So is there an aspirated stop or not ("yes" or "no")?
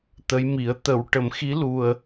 no